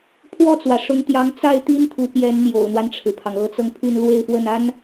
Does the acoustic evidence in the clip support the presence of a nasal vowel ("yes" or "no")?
no